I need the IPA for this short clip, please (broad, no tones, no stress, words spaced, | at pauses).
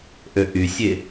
ʔøʔysʲe